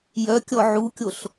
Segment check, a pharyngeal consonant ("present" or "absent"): present